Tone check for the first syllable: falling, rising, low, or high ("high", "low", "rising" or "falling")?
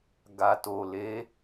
low